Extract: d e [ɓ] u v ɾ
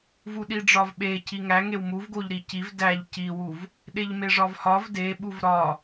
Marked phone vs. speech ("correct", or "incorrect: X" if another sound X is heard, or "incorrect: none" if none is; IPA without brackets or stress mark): correct